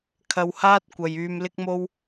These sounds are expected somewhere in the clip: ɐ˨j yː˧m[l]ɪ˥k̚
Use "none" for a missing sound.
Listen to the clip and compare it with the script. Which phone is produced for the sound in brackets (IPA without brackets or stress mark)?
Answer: l